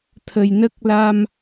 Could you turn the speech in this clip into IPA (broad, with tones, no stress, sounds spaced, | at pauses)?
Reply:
t̪ʰ ə˨˩ j n ə˦˥ k̚ l a˧ m